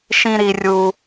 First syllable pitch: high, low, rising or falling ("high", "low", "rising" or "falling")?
high